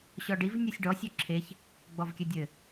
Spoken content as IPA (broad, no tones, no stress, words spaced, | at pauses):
ɕɔɖiv nʲusʲɖɔ sʲɵǁʰeç | ɡ͡bɔvkʲɘdʲɘ